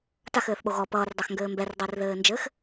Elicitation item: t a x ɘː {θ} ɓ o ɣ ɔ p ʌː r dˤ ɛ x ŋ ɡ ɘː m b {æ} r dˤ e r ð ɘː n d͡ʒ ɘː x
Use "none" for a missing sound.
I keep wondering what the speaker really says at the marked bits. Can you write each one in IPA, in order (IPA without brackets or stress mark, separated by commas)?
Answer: θ, ɛ